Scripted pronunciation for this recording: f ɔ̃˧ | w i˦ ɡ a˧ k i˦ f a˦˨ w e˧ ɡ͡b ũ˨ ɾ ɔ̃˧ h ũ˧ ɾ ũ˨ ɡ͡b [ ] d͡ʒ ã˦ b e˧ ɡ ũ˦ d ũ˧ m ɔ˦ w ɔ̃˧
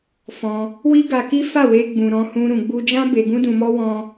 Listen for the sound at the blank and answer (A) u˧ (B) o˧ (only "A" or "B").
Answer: A